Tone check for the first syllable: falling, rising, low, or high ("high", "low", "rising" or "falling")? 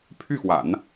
falling